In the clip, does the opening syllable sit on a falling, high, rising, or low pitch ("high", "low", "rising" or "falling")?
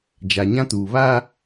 low